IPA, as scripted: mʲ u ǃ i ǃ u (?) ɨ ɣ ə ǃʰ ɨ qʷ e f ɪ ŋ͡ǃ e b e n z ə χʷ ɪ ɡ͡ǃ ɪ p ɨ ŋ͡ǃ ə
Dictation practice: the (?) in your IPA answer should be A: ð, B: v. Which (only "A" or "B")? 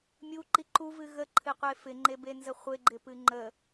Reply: B